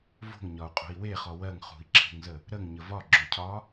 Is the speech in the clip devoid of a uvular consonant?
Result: no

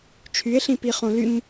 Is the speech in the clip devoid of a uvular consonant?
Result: no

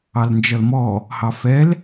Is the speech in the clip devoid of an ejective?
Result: yes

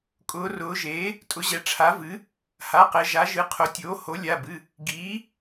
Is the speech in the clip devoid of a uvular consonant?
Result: no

